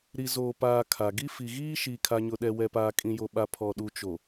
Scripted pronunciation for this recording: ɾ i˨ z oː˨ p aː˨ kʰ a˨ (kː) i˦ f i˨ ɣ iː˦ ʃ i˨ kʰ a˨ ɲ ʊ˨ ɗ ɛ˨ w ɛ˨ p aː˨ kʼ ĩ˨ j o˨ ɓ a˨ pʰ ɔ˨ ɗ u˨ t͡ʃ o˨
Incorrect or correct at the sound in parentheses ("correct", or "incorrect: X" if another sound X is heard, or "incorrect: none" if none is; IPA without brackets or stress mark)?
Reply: incorrect: ɡ